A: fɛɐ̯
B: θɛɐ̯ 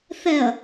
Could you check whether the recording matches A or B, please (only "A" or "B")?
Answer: B